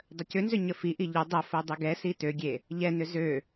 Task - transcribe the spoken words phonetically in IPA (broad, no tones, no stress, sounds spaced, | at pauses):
dˤ ə c ʏ n z ʏ ɲ ə f i ʔ i ʎ ʏ dˤ ə f o dˤ ʏ ɡ ɛ s i t ø ɡʲ e | ʎ ɛ n ʏ z ø